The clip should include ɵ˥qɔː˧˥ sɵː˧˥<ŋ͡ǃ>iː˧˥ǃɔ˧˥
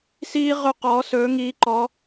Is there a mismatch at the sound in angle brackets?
yes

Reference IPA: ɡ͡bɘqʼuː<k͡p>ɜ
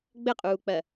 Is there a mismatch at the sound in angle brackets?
no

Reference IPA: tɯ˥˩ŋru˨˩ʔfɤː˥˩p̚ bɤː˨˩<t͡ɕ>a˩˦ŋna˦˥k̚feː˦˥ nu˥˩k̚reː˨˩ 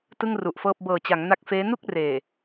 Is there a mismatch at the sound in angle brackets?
no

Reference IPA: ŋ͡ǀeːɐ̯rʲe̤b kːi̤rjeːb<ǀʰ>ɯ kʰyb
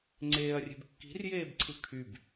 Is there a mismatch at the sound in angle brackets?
no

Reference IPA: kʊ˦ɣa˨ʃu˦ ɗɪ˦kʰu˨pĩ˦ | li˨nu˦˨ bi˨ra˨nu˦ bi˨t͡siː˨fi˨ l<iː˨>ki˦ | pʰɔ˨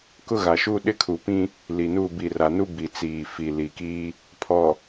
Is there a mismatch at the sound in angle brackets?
yes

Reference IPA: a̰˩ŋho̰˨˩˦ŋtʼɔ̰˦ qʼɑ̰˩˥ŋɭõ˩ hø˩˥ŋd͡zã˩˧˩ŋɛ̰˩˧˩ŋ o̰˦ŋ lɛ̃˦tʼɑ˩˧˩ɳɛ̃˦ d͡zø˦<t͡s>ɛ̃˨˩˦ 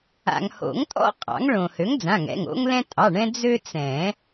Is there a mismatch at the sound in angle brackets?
no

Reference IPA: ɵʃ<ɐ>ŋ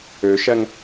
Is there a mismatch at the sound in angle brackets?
no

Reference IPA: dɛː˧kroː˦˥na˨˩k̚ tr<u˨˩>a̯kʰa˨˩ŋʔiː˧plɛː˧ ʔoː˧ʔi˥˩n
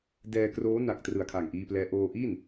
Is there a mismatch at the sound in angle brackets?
yes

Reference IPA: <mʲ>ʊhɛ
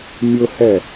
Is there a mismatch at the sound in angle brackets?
no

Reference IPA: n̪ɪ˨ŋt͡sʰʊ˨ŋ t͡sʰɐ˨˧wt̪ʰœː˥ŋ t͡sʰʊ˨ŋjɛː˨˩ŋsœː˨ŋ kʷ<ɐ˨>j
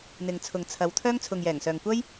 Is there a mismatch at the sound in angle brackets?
yes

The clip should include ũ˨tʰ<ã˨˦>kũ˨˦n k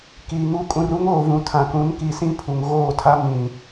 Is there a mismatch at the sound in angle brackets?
yes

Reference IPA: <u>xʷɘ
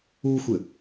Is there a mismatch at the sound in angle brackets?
no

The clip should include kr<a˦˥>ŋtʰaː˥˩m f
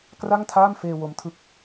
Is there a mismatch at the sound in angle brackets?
yes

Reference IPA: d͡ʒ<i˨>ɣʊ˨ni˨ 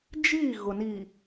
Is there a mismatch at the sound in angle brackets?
yes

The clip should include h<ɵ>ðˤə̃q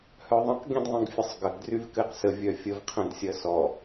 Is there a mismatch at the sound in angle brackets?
yes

